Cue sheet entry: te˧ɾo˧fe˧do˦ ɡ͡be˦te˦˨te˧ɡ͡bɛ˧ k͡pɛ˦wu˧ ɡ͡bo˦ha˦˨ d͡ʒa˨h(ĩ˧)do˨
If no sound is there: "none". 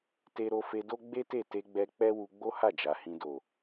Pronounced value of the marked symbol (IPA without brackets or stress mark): ĩ˧